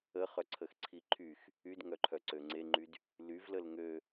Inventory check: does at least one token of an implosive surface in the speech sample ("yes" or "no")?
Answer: no